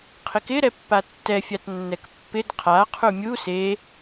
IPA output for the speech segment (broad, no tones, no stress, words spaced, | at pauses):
qʰɪkɪɾɛpːa tːɛfʲatnːɛk pːɪd qʰaqʰu mʲu se